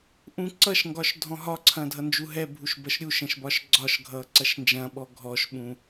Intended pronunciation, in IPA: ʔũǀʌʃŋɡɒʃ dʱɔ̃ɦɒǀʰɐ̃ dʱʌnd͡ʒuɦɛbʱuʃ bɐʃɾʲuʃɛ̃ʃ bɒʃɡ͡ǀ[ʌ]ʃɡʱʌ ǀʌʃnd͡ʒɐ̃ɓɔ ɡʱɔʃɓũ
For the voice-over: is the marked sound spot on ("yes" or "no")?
no